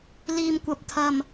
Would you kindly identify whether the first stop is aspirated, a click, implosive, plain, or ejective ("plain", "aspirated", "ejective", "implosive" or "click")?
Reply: plain